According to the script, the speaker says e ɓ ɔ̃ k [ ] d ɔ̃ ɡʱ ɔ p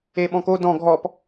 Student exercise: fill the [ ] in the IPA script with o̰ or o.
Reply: o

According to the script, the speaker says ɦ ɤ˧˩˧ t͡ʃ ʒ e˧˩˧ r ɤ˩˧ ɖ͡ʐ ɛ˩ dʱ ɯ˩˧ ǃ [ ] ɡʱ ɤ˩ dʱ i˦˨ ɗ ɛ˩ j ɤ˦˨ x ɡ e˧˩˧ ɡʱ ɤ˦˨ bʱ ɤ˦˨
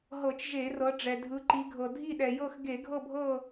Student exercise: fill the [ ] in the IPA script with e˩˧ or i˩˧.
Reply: i˩˧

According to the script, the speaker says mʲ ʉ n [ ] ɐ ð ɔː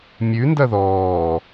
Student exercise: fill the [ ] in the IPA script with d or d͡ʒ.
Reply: d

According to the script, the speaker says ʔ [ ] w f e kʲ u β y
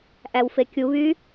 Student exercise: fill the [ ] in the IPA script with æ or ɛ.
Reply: æ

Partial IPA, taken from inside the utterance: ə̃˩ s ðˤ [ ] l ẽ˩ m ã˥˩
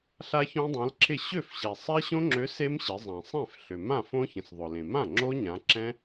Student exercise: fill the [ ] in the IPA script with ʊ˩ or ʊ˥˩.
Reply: ʊ˩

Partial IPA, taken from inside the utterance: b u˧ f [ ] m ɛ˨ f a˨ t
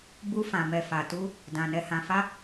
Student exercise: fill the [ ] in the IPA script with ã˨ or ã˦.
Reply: ã˨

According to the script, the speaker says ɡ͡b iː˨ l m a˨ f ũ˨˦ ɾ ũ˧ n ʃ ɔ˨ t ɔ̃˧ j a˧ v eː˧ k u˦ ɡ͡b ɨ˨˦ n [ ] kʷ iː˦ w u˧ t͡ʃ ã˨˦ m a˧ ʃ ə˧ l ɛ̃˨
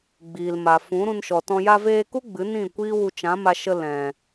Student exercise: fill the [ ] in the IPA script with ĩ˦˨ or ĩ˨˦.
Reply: ĩ˦˨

